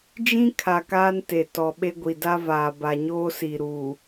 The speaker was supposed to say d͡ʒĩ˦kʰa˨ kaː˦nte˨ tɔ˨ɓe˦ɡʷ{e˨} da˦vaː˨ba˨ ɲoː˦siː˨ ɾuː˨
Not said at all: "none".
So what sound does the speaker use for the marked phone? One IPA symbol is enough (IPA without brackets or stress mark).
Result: i˨